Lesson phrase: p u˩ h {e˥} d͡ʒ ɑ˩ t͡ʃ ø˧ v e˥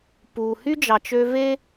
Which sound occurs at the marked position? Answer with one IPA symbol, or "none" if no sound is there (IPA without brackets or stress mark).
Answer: y˥